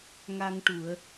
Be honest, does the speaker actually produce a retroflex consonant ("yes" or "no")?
yes